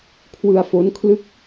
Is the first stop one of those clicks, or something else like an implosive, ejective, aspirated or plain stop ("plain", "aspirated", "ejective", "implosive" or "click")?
aspirated